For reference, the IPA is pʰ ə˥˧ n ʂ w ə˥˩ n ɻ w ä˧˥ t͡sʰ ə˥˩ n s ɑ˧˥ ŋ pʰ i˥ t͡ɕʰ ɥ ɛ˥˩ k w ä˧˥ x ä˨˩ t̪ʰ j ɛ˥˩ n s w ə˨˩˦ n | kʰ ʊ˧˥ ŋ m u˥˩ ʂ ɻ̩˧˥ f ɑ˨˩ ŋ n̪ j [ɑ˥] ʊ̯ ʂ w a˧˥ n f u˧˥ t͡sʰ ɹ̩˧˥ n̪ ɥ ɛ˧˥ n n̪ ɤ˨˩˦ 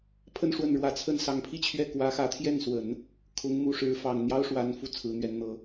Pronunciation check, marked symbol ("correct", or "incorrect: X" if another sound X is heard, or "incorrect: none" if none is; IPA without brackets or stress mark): correct